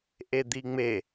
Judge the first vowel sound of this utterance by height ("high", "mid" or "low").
mid